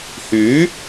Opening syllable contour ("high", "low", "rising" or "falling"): rising